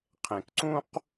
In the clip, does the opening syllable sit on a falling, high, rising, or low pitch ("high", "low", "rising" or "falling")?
low